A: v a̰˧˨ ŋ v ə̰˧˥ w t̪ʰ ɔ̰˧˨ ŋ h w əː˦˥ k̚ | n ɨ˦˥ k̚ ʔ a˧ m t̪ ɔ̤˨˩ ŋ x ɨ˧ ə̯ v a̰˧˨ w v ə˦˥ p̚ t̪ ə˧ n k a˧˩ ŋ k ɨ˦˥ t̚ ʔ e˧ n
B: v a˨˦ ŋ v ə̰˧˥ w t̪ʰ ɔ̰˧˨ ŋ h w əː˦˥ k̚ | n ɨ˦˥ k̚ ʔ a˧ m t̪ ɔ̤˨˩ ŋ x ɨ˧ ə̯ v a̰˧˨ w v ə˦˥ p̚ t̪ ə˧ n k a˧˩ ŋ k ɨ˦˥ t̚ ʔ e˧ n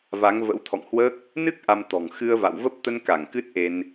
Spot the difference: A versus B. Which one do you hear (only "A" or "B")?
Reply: B